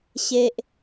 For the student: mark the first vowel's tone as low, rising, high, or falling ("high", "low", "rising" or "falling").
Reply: high